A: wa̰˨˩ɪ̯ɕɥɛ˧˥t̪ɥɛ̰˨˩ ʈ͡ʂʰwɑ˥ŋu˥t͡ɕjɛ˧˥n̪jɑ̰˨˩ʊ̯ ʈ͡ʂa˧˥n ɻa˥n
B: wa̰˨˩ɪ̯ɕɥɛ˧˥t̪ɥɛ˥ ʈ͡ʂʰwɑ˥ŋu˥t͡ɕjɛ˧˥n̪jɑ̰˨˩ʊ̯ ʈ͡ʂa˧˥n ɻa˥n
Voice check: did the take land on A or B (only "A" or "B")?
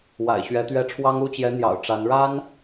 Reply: B